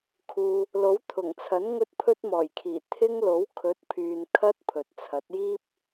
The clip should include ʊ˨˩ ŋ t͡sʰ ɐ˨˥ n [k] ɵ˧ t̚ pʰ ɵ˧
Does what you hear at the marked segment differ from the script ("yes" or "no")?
yes